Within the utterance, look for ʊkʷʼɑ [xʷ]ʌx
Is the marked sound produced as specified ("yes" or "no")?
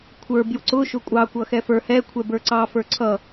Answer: no